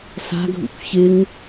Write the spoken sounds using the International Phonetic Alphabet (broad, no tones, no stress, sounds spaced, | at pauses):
s a̤ ɡʱ ṵ kʷ ç ɪ ŋ